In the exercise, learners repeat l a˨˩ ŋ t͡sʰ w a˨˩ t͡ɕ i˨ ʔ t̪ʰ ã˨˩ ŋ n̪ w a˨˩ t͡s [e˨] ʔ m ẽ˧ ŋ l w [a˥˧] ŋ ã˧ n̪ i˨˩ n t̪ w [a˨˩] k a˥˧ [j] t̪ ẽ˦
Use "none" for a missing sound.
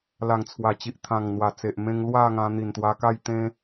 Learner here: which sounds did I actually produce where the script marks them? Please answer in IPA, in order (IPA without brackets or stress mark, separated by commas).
e˨, a˥˧, a˧, j